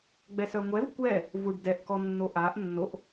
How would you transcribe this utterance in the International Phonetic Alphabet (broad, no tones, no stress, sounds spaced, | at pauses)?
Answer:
ɡ͡b ɛ s œ ŋʷ ɛ v kʷ ɛ | v u ɖ d ɛ ʔ k ɔ nː o ʔ a ʔ nː o ʔ